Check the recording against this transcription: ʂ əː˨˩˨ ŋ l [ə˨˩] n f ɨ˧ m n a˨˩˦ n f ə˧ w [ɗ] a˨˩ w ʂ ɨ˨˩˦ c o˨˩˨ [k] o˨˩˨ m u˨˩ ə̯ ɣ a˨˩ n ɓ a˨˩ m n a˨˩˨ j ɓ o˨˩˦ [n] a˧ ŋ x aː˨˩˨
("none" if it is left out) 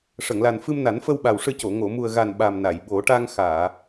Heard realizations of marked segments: a˨˩, ɓ, ŋ, ʈ

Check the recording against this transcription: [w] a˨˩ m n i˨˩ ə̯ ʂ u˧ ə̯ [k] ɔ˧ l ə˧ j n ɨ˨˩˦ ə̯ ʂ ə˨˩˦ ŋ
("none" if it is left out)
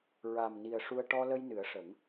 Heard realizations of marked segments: ɹ, ʈ

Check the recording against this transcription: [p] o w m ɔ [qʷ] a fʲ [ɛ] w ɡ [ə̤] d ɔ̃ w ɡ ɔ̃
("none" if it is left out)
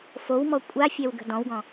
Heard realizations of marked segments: f, kʷʼ, ɛ, ə̤

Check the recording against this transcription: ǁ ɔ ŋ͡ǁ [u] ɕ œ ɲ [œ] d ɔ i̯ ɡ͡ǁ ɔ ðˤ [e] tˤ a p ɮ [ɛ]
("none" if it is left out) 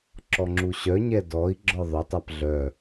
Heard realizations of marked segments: u, ɛ, ø, œ

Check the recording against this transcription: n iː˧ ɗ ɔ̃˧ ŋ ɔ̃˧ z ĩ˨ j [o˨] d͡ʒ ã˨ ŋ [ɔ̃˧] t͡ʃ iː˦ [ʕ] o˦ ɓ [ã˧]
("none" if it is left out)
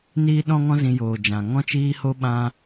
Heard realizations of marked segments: oː˨, ɔ̃˦, h, ã˧

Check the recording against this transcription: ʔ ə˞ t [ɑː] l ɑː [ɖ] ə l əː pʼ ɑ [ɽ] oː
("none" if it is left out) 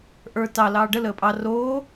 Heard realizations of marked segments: ɑ, ɖ, r

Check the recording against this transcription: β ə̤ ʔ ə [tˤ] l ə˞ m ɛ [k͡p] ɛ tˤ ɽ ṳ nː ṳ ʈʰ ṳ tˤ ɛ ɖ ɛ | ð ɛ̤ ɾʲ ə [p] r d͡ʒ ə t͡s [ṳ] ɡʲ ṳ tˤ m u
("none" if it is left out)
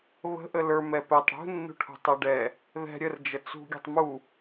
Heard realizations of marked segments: none, p, none, ṳ

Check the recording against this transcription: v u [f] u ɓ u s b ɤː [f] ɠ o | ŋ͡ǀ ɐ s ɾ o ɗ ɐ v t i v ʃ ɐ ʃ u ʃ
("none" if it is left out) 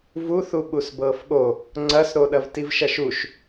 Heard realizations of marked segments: θ, f

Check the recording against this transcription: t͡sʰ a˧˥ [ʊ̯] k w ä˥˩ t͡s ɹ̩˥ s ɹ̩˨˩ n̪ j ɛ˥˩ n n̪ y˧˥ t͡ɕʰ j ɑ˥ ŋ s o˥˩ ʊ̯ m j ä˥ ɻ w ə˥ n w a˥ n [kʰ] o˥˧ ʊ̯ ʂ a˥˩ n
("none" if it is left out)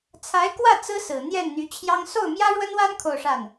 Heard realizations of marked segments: ɪ̯, kʰ

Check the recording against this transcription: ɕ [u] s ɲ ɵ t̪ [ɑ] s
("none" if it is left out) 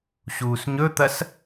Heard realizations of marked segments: uː, ɐ

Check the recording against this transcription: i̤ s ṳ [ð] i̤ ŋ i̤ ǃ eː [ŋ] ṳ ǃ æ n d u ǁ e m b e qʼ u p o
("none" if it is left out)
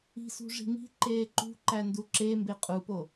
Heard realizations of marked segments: ʐ, ǃ

